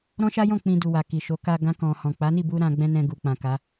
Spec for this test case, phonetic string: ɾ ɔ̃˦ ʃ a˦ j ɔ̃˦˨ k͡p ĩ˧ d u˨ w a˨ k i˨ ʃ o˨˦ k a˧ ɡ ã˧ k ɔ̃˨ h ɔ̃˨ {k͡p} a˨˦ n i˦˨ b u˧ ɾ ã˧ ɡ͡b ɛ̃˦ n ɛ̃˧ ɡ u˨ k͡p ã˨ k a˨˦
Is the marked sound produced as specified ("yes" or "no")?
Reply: yes